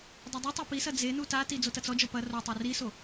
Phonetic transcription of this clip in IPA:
dˤ e dˤ i tˤ o p i s ɐ d͡z e n u t a t i d͡z o t ɐ t͡s ɔ d͡ʒ ɔ p ɐ r o tˤ a r i s o

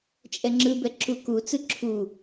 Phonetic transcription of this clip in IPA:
t͡ʃʼ ɛ ŋ͡ǁ ɯ b ɛ ǁ u k u t͡s ɯ ǁʰ u

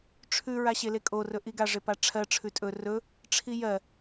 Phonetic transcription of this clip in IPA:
ʈ͡ʂʰ ʉ ɹ a ɕ e l e kʼ o r ɵ ʔ i ɡ a ʐ e p a ʈ͡ʂʰ ɜ ʈ͡ʂʰ ʉ tʼ ɵ r ɵ | ʈ͡ʂʰ i j ɜ

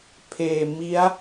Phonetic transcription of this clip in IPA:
pʰ eː˨˩ m i˦˥ a̯

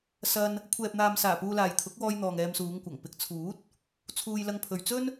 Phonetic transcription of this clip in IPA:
s ɐ˧ n | kʷʰ ɛː˨ p̚ n̪ aː˨ m s aː˨˩ p uː˧ l aː˨ j t̪ʰ ʊ˨˥ k̚ w ɔː˧ j n̪ ɔː˨ ŋ ɛː˧ m s uː˨˧ ŋ kʷ ɐ˨˩ ŋ p ɪ˨ k̚ t͡sʰ uː˨˥ t̚ | t͡sʰ uː˧ j l ɐ˧ ŋ pʰ ɵ˨ ɥ t͡s ɵ˥ n

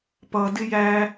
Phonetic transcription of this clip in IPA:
p ʌ d ɪ j æ

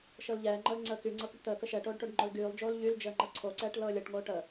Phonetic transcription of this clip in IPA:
ʃ ɤ l ʎ ɛː ŋ͡ǃ ɤ l ŋ͡ǀ əː k y ŋ͡ǀ ɤ k y ʈ t̪ əː k ə ʃ ɛ ʈ oː ɖ ʈ o ɖ ŋ͡ǃ o l ɡ yː lˠ d͡ʒ oː l ʎ y l d͡ʒ əː ŋ͡ǃ ɤ ǀʰ o ǀ ɛː ʈ l ɤː lʲ ɤ ʈ ŋ oː ʈ ə

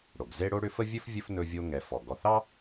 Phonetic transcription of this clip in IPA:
ɽ o˩ ɡ z e˦ ɽ o˦ ɽ ʏ˦ f ə˥ vʲ ɵ˥ f vʲ ɵ˦ f n ɵ˦ vʲ o˦ ŋ ɛ˨ f ɔ˩ ɡ ɔ˨ θ ɑ˥

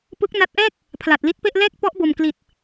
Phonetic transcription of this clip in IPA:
p ɯ˦˥ k̚ n a˦˥ t̚ ʔ ɛː˥˩ k̚ | pʰ l a˨˩ t̚ l i˦˥ t̚ p e˥˩ ʔ l ɛː˥˩ k̚ p ɔ˦˥ ʔ b o˨˩ m k l i˨˩ t̚

